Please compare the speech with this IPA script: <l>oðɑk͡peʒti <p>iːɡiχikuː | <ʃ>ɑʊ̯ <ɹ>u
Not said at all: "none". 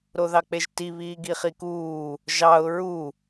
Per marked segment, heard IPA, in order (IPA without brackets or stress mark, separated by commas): ɾ, β, ʒ, ɹ